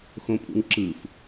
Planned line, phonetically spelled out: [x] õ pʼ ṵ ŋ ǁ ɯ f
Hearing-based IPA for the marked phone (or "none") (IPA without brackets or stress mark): x